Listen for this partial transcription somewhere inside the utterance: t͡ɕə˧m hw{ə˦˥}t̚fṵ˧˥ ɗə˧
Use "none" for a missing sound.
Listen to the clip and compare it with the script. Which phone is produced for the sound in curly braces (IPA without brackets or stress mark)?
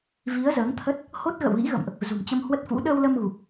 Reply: ə˦˥